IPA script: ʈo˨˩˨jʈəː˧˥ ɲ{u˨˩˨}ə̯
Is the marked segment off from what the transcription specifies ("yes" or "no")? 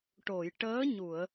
no